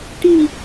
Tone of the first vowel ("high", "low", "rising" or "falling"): falling